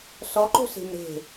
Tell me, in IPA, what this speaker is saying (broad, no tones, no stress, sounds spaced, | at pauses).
s ɔ ǃ o̤ s e̤ m ɾ e̤